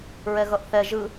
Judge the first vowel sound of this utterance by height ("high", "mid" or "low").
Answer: mid